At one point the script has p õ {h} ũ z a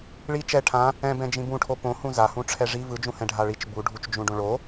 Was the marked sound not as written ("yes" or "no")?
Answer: no